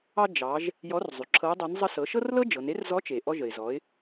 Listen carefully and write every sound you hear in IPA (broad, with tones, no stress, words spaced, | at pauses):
ɑ˧ d͡ʒɑ˩˧ʒ | jɔ˧˥rzˤy˩ǁʰɤ˧˥ʊ̯dˤɤ˧˥n zˤə˧sɤ˩˧ʃɤ˥rlɤ˥ d͡ʒɤ˩˧n e˧˥rzɔ˧˥t͡ʃe˩ ʔɔ˧ʒə˩ɪ̯zɔ˩˧ɪ̯